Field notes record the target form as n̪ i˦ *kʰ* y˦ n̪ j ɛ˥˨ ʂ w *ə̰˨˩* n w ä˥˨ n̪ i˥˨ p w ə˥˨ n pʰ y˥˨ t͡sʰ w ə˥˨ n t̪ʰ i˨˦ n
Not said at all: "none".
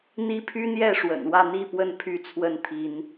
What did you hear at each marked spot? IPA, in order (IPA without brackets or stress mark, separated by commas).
pʰ, ə̰˨˩